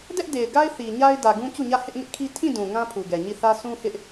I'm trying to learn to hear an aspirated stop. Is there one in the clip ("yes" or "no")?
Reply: yes